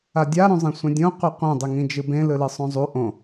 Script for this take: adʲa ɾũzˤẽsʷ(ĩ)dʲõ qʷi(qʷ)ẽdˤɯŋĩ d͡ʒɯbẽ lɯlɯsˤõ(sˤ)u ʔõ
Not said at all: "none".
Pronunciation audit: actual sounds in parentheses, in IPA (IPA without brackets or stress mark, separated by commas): ẽ, qʷ, zˤ